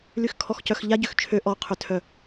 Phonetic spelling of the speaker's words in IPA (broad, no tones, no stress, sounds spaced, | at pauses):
l y x kʰ ɔ x c œ x ʎ a ɟ ø x t͡ʃʰ ø ʔ ɔ qʰ ø tʰ œ